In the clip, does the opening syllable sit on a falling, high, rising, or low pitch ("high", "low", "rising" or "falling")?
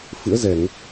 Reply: rising